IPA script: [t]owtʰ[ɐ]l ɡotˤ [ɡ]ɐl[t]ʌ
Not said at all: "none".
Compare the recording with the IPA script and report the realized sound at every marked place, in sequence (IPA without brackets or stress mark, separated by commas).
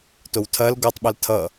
t, ɐ, ɓ, tʰ